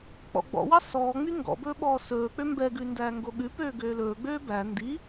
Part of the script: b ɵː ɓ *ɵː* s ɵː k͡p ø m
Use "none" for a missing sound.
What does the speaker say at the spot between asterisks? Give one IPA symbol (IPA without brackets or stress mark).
ɔː